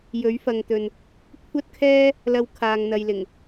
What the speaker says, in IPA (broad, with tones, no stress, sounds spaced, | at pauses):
j ɵ˨˥ ɥ f ɐ˨ ŋ t̪ ɵ˨ n | kʷʰ ɐ˥ t̚ kʰ ɛː˥ | l ɐ˥ w kʰ aː˧ ŋ n̪ ɐ˧ j l ɪ˨˩ ŋ